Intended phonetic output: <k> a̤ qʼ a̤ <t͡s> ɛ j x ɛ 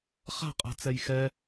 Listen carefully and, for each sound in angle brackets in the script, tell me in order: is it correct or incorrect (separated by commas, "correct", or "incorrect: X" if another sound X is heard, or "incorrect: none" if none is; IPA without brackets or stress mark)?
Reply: incorrect: χ, correct